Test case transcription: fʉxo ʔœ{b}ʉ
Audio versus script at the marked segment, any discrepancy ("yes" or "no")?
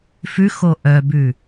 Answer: no